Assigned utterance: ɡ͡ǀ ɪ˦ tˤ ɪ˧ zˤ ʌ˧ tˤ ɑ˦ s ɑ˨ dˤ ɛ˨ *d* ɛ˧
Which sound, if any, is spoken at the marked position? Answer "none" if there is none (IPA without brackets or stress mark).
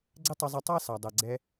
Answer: ɡ͡ǀ